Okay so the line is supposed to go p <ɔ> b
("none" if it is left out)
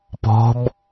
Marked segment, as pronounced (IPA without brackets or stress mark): ɔ̤